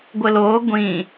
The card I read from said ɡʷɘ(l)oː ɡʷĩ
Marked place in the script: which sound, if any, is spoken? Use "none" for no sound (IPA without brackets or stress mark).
l